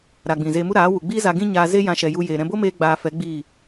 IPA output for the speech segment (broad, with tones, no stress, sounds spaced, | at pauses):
ɾ a˨ ɡ͡b ĩ˨ z eː˧ m u˦ ɾ aː˨˦ w u˨ ɡ͡b iː˦ z a˧ ɡ ĩ˦ ɲ aː˧ z e˦ j ã˧ ʃ ɛ˨ j u˧ j eː˨ ɾ ɛ̃˧ b o˦ m eː˦ ɡ͡b aː˧ f ɛ˨˦ ɡ͡b iː˦˨